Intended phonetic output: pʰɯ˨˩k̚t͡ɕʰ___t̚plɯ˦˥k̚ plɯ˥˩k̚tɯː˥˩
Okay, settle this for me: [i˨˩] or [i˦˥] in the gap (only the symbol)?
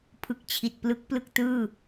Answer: i˨˩